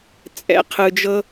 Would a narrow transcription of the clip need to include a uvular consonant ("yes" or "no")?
yes